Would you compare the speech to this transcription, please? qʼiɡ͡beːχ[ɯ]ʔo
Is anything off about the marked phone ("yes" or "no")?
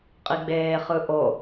no